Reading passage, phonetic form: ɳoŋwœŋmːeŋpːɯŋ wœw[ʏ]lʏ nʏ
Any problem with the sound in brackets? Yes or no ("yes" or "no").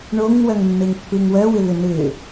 no